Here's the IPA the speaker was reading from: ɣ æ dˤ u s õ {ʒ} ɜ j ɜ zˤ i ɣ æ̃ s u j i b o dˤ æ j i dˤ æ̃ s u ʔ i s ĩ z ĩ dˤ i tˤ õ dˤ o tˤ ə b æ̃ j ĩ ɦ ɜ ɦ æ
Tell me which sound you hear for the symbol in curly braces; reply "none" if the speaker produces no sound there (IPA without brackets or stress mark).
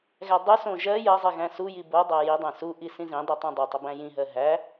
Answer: ʒ